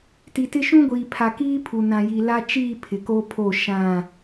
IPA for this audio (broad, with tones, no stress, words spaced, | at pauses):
ti˨tɪ˦ ʃũ˦ɡʷiː˨ pʰa˨kiː˦pʰu˨ nã˨ji˨la˦t͡ʃiː˦˨ pʰɪ˨ko˦pʰo˦˨ ʃã˦˨